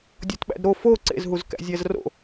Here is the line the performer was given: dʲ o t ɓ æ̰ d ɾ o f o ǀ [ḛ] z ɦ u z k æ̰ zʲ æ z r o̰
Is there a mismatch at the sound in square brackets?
no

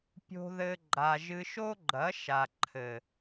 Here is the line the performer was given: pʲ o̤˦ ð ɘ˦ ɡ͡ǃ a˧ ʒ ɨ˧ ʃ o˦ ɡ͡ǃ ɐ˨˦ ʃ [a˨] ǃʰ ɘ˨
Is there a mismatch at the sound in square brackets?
no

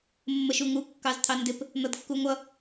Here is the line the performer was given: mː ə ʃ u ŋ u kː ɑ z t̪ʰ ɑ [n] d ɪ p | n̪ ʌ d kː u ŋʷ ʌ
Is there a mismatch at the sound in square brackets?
no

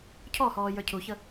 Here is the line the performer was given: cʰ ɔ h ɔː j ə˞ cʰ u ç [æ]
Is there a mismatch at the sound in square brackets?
yes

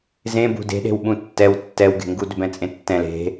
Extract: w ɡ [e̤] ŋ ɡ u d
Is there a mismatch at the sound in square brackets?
no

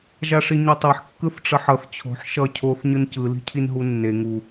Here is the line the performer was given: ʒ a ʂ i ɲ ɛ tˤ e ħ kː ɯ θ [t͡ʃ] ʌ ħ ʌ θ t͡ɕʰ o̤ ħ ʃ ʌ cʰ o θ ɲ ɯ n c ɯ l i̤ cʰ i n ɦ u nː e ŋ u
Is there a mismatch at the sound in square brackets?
yes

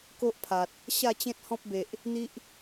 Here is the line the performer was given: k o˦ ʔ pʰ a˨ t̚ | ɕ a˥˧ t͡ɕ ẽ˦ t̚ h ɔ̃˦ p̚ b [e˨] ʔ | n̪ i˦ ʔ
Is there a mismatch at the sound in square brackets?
no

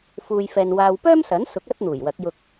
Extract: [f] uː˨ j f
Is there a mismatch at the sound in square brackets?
no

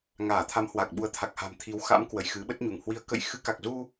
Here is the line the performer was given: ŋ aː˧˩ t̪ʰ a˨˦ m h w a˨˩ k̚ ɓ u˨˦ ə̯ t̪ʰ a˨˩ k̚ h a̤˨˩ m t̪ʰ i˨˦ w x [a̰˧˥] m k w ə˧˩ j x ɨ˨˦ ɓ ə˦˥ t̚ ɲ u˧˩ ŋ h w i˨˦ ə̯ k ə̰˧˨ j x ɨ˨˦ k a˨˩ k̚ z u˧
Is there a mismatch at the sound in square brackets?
no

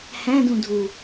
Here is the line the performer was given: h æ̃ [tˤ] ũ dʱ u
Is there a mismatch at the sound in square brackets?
yes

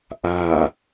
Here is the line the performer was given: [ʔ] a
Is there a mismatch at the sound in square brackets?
no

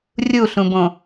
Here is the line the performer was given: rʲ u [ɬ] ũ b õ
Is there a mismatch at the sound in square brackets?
no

